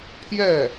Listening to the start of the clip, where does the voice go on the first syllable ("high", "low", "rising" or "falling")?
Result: falling